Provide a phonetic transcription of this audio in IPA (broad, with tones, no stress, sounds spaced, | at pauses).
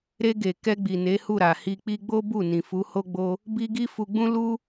ɾ e˧ ɡ e˨ k ɛ˧ ɡ͡b i˨ n e˨˦ h u˦˨ ɾ a˨ h i˧ k͡p i˦ ɡ͡b o˦ b u˦˨ n ĩ˨ f u˨˦ h o˦ ɡ͡b o˦ | b i˦ ɡ i˦ f u˧ ɡ͡b ũ˦ l u˦